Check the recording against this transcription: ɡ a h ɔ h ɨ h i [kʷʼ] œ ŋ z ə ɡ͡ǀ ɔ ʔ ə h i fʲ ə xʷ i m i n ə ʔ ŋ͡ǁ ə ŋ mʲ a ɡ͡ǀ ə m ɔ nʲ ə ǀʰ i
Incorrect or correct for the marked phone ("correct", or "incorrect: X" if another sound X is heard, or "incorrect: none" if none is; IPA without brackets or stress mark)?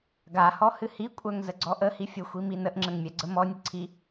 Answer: correct